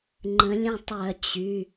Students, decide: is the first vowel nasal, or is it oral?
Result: nasal